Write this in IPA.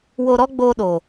w o˧ ɾ ɔ˦ ɡ͡b oː˧ ɗ o˨

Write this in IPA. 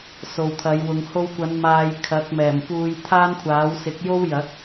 s o˨ w t̪ʰ ɐ˨˧ j w ʊ˨˧ ŋ h o˧ w kʷ ɐ˨˧ n m aː˧ j kʰ ɐ˨˥ k̚ m ɛː˨˩ m p uː˧ j t̪ʰ aː˥ n kʷʰ aː˨˥ w s ɪ˨˥ k̚ j o˥ w j ɐ˨˥ k̚

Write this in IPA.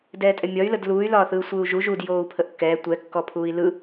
d ɛː tʼ ɛ mʲ ɒ y̯ l ə d l uː y̯ l ɒː θ ɯː sʷ ɯː u̯ ʒ u ʒ u d j oː u̯ pʰ ə ʔ kː ɛː tʷ ɛ kː ɔ pʰ uː i̯ l ɯ

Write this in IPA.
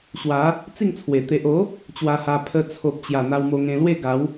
ɕ w a˨˦ | t͡s i˥˧ ŋ t͡sʰ w e˨˩ t̪ e˨ ʔ o˨˦ | t͡ɕ w a˧ h a˧ pʰ ə˧ t͡sʰ o˨ p̚ t͡ɕ j a˨˩ n̪ a˧ w m o˧ ŋ ẽ˧ l w e˥˧ ɡ a˨˦ w

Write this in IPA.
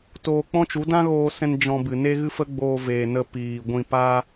t oː˧ k͡p ɔ̃˦ t͡ʃ u˨˦ d ã˦ ɣ oː˧ s ɛ̃˧ n d͡ʒ ɔ̃˧ b ɨ˨ n e˦ ɣ ɨ˦ f ə˦ ɡ͡b oː˧ v eː˨ n ə˧ p iː˨ ɡʷ ĩ˧ p aː˦

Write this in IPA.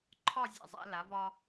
ǃʰ ɒ˥˧ zʲ ḛ˧˩ zˤ æ̰˩˧ l a˩˧ v ɒ˧

